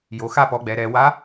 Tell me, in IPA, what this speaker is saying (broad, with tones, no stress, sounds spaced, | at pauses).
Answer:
j o˩˧ x a˧ p ɔ˩˧ ɡ͡b ɛ˩˧ ɾ ɛ˩˧ w a˧˥